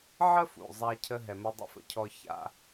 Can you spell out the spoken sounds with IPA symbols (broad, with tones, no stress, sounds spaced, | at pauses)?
ʕ ə˥ f ṵ˩ zˤ a˧ cʰ ə˧ ɦ ɛ˩ m ə˧ dˤ ə̰˧ f ə̰˩ cʰ ɔ˧ ç a̰˧